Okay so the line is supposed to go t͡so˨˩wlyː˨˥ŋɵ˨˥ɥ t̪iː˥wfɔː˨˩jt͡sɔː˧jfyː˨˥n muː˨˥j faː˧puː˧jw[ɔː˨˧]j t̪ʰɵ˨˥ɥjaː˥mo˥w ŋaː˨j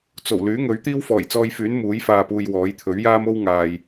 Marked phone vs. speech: incorrect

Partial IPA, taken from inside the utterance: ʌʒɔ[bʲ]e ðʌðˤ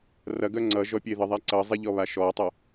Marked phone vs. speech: incorrect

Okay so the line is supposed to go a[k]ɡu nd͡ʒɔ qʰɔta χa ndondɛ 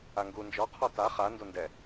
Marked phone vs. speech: incorrect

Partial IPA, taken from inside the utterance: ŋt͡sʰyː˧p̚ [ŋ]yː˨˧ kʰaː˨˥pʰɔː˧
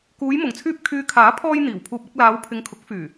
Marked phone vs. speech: incorrect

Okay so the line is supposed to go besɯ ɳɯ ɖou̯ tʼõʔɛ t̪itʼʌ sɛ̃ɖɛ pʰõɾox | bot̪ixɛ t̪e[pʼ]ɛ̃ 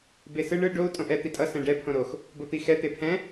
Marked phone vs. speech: incorrect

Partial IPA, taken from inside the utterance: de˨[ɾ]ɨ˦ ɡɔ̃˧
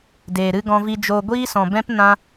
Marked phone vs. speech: correct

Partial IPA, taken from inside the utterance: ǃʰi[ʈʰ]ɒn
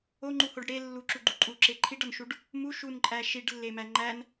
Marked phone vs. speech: incorrect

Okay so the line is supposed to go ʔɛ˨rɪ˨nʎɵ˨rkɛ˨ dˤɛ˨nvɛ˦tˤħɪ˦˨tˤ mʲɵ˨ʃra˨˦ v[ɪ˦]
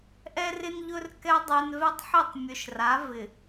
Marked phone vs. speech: incorrect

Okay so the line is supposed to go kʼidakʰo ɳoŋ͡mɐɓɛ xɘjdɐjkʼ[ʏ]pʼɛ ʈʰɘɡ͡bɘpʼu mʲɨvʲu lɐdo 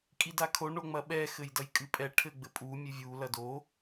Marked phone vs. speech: incorrect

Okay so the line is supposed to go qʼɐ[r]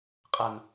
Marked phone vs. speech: incorrect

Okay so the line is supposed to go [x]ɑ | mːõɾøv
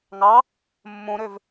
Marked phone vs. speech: incorrect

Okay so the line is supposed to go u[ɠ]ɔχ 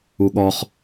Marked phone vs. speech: correct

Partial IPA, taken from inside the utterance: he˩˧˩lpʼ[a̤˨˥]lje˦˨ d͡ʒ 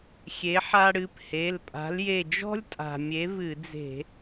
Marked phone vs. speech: correct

